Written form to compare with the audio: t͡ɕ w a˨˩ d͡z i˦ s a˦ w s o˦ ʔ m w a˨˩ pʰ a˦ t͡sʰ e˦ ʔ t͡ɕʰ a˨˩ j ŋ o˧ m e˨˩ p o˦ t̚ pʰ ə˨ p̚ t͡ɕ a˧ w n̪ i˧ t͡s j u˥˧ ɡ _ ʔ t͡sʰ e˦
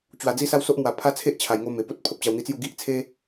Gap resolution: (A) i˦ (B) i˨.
A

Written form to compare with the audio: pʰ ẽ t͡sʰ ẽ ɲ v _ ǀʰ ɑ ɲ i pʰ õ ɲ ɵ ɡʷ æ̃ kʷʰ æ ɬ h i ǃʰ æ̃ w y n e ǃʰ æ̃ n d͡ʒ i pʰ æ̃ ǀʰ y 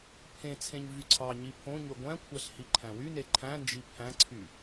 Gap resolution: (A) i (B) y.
B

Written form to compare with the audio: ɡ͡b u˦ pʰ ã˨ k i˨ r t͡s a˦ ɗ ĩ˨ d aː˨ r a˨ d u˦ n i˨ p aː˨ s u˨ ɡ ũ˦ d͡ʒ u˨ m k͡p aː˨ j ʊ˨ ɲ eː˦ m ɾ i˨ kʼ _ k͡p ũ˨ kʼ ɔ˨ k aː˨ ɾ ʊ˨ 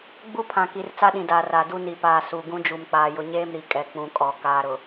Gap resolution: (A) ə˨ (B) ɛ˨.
B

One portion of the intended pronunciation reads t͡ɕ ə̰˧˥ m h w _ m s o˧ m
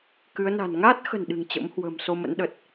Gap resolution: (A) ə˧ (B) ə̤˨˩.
B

